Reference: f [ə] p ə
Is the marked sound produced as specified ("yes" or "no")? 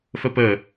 yes